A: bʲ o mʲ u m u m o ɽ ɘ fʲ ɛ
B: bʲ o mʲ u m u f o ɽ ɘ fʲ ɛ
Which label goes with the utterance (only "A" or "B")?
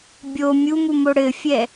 A